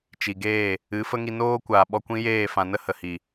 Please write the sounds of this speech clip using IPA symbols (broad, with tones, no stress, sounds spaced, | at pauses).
t͡ʃ i˨ ɡ eː˦˨ | ɨ˨˦ f ə˦ ŋ i˧ n oː˦ kʷ aː˨ ɓ ɔ˧ kʷ ĩ˦ j eː˦˨ f ã˨ n ə˦ h ə˨ h i˨